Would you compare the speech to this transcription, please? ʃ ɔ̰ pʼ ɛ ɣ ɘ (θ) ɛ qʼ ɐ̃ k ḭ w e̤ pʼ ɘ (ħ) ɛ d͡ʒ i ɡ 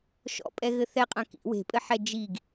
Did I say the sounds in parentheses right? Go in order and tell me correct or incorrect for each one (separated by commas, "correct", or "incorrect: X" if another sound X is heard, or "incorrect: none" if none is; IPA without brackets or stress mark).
correct, correct